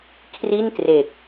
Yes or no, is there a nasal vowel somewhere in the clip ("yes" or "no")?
no